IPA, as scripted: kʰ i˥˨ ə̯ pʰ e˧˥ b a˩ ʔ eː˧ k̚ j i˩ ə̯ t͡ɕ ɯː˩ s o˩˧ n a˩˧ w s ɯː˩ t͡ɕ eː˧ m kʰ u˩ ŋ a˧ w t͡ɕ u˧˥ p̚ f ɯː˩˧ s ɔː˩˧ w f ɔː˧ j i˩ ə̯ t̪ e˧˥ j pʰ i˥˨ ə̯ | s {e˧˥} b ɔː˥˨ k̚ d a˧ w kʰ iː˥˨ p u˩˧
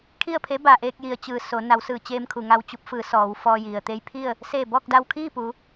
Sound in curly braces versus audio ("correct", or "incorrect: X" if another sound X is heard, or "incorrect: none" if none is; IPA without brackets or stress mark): incorrect: e˧˩